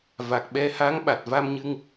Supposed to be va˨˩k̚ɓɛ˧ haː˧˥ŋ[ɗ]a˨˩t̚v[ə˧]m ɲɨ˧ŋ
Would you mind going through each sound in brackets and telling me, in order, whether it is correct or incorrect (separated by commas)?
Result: incorrect, incorrect